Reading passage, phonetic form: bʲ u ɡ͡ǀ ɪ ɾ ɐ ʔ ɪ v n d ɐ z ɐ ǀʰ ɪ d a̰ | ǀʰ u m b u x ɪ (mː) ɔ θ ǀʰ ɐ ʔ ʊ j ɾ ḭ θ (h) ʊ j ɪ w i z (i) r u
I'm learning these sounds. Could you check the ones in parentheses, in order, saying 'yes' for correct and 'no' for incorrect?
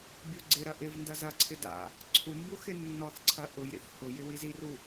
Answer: no, yes, yes

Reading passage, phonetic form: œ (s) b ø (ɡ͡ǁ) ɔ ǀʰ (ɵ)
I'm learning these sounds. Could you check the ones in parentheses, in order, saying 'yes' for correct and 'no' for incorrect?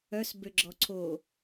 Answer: yes, yes, no

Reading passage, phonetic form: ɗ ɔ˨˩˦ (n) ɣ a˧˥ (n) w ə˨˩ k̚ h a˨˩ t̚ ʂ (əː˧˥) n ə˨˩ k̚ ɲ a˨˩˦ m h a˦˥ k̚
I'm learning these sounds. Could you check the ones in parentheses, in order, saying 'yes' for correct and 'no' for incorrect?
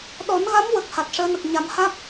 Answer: yes, no, yes

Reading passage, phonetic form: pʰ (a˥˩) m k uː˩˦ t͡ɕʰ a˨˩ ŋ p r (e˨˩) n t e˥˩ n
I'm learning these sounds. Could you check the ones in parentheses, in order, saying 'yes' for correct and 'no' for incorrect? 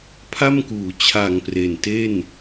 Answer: yes, yes

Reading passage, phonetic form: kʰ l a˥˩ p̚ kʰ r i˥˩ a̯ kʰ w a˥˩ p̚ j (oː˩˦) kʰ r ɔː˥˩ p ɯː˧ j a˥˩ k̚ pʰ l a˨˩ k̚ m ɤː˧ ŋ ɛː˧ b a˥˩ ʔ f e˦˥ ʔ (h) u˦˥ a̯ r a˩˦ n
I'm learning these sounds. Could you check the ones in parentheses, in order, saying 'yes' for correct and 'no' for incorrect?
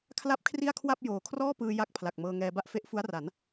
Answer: yes, no

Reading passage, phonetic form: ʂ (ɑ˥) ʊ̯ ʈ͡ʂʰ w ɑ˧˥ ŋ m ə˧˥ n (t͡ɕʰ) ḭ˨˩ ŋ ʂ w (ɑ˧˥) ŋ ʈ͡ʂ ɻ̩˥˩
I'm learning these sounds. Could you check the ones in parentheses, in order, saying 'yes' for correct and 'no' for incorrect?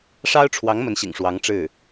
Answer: yes, no, yes

